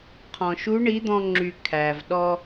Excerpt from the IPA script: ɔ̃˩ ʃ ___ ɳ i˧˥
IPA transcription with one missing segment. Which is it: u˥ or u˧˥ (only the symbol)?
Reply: u˧˥